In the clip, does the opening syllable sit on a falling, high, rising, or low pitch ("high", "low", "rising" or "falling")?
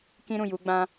high